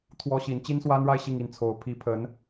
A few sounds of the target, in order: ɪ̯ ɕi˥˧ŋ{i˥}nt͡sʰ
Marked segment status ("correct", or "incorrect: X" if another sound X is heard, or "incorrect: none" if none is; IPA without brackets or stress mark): incorrect: i˥˩